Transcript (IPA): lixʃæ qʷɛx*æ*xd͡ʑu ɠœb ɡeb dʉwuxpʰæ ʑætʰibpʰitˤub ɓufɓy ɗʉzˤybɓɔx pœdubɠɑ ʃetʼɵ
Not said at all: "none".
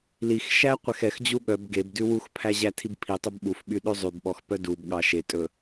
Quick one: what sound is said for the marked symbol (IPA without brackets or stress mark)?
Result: ɛ